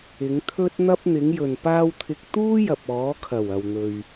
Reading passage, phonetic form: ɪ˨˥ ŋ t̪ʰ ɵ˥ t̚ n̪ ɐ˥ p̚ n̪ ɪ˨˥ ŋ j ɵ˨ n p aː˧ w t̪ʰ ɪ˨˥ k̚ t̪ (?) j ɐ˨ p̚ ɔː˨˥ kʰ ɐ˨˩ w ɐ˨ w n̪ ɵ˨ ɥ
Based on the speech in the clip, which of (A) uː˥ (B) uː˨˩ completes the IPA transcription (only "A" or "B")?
A